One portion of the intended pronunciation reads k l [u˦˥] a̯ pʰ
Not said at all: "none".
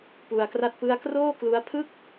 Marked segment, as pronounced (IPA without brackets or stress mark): u˦˥